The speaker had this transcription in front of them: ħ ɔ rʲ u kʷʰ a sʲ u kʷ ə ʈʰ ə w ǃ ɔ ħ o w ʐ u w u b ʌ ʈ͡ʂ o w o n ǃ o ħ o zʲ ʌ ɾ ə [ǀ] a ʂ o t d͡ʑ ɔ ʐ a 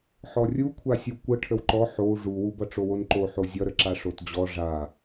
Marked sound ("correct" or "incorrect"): incorrect